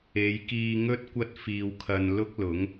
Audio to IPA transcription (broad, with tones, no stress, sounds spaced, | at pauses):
e˨˧ j k iː˧ ŋ ɵ˥ t̚ kʷ ɐ˥ t̚ f iː˧ w kʰ ɐ˧ n l ʊ˥ k̚ l ʊ˨˥ ŋ